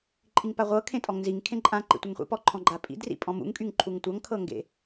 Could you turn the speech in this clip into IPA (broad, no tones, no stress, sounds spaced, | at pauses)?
ǃʼ i ŋ p a ʁʷ ɤ kʰ ẽ tʼ ɔ ŋ n z i ŋ kʰ ẽ ǃʼ ã ǃ ḭ tʷ ɛ ŋ χʷ ḭ p ɔ ǃʰ ɔ̃ ɡ͡ǃ a pʼ ḭ d r ḭ pʼ ɔ̃ m ṵ ŋ kʼ y ŋ ǃʰ u ŋ tʷ ʌ ŋ kʰ ɤ ŋ ɡ ḛ